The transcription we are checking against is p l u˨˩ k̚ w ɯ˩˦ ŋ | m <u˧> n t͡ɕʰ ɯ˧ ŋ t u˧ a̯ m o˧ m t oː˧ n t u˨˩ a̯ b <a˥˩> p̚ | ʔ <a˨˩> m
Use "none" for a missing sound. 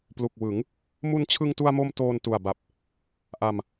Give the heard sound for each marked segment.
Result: u˧, a˨˩, a˧

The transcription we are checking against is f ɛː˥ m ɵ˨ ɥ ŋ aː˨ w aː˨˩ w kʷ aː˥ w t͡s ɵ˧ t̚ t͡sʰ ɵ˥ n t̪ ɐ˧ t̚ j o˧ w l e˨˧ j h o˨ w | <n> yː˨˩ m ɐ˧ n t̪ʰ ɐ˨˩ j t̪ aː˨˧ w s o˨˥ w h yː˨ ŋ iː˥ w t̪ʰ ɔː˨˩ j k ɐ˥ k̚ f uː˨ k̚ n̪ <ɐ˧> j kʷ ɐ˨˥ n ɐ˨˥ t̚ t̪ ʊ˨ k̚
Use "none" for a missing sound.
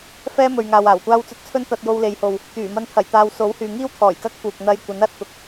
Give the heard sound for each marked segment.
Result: t̪, ɐ˧

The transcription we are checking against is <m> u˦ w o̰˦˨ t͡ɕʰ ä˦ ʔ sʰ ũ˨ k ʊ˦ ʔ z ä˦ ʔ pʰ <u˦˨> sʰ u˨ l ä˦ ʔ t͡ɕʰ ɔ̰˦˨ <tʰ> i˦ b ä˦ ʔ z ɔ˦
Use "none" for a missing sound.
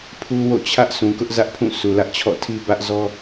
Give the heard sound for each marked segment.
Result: pʰ, ũ˦˨, tʰ

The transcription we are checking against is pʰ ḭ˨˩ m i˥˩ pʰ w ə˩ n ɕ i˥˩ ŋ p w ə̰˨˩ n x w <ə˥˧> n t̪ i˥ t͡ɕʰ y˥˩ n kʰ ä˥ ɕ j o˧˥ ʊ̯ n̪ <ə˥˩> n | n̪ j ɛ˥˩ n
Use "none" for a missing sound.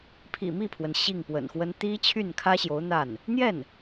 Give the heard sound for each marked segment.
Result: ə˥, a˥˩

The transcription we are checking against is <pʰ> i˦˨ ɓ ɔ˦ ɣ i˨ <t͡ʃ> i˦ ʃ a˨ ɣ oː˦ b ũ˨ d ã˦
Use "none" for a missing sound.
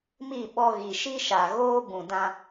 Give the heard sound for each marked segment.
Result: m, ʃ

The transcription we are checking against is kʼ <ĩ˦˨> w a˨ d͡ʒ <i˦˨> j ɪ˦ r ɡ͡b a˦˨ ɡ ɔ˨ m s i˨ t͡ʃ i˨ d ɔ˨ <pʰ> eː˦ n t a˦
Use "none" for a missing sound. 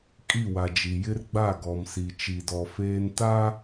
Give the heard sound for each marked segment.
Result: i˦˨, i˨, f

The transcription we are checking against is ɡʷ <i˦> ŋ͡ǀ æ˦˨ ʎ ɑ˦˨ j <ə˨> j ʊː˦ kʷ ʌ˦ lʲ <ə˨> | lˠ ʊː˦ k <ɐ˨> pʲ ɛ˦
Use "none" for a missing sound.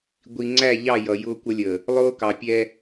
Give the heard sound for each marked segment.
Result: i˨, ʌ˨, ə˨, ɑ˨

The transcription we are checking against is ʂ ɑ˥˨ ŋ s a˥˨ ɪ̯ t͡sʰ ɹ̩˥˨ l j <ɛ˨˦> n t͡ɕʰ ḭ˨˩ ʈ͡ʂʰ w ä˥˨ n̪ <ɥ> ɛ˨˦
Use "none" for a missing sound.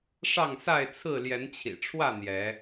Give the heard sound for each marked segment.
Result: ɛ˨˦, j

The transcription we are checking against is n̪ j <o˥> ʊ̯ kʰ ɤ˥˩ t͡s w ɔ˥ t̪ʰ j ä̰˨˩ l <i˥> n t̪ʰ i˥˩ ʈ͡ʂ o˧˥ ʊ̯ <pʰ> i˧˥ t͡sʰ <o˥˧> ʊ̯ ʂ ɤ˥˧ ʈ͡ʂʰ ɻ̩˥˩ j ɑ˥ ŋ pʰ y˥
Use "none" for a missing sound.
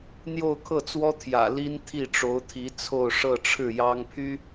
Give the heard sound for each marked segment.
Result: o˥˧, i˥, t̪ʰ, o˥˧

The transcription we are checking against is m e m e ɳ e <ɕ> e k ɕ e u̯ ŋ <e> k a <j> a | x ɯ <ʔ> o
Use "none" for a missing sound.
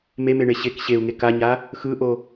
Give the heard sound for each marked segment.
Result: ɕ, e, ɲ, ʔ

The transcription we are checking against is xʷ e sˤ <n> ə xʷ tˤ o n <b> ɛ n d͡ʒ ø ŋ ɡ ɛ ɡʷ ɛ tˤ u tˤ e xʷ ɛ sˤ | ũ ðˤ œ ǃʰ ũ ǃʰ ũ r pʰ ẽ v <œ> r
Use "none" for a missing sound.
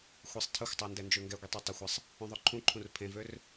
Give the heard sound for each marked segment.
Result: tʰ, d, ø

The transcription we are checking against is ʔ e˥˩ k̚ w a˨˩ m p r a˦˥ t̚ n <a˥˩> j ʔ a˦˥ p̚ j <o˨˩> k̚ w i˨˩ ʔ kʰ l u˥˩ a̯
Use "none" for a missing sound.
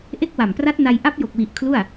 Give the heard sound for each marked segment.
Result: a˧, o˨˩

